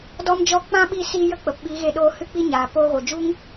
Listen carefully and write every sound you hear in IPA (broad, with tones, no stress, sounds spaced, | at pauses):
d ɔ˦ m d͡ʒ ɔ˦ k͡p ã˦ ɓ i˦˨ s iː˧ j ə˦ k͡p ə˨ p ɓ i˨˦ ɣ e˧ ɗ oː˧ h ɨ˦ k͡p i˦ ɲ aː˨ p oː˧ ɣ o˨ d͡ʒ u˦ ŋ